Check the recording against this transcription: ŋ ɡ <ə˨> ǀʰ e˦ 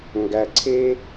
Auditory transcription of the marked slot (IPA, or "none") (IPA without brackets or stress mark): æ˨